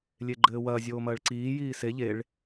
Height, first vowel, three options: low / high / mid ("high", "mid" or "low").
mid